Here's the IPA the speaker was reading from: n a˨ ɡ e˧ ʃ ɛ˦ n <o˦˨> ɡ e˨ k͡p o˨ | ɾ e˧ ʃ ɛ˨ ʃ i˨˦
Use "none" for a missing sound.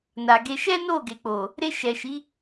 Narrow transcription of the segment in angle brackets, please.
o˦˨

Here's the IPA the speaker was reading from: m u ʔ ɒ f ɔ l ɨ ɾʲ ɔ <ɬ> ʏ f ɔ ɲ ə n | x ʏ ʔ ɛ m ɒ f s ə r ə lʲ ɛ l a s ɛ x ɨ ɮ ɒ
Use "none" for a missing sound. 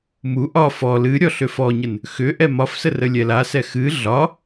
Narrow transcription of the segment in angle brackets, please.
ɬ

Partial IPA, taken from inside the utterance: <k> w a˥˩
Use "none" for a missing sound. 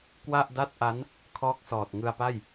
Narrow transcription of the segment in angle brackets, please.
k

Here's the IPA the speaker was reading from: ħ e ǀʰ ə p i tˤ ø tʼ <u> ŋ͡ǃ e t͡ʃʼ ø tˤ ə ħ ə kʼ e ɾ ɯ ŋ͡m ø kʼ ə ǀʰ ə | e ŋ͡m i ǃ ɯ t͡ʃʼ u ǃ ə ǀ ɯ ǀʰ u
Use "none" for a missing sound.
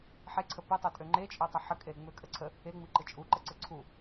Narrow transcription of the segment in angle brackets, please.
ø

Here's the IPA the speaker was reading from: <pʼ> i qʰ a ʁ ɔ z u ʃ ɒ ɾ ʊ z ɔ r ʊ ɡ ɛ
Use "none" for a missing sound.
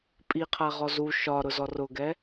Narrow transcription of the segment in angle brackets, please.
pʼ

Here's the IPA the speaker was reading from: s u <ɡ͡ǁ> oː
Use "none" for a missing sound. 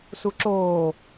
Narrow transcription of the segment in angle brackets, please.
ǁ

